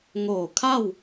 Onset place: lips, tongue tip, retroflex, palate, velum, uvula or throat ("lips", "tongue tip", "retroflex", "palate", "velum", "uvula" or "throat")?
velum